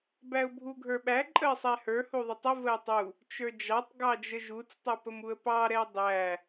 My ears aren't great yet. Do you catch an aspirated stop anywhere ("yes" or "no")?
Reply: no